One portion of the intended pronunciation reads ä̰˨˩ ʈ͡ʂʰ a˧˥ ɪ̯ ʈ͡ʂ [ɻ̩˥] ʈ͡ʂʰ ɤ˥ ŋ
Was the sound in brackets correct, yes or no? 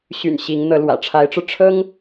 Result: no